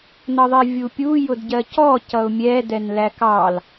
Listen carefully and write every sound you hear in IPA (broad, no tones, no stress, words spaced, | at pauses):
nʌðˤivʲupʲu jʊdɟɜcɔ cʌʊ̯mʲɛ dɛnlækɑl